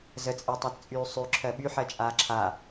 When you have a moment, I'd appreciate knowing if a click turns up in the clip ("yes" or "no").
yes